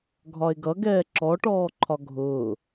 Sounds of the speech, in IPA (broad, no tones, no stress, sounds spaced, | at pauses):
ɡʱ ɒ e̯ ɡ ʌ ɡ ɛː ǁ ɔ ʈ ɔː ǃʰ ɒ ɡʱ ʊː